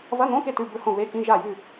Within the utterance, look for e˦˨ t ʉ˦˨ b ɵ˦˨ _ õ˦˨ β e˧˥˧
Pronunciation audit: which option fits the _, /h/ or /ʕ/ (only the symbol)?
h